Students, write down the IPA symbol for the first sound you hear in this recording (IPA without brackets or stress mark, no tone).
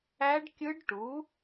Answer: æ